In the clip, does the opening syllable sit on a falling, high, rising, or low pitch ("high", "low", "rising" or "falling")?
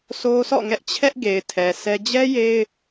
high